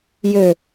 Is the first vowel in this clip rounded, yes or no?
yes